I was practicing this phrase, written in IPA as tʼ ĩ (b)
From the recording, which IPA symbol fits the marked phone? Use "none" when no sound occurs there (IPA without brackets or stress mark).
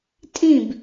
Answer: b